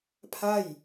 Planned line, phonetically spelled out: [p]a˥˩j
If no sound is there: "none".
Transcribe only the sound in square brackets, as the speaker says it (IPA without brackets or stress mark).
pʰ